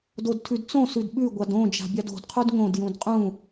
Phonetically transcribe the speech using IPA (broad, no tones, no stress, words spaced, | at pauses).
dodtʰʉdt͡sõ sʉdɓʉ ɡʷadõ d͡ʒa̤bʲado̤d qʰudŋõd jũdqʼũ